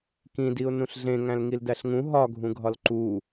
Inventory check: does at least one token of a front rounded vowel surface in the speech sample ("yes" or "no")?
no